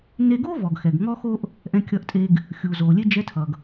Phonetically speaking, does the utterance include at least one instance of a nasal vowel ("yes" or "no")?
yes